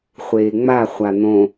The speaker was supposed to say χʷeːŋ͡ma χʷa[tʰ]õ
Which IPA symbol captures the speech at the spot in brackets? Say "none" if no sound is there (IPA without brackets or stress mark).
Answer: n̪